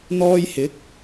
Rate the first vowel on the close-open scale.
mid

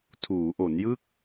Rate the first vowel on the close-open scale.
close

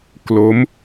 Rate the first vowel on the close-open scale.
mid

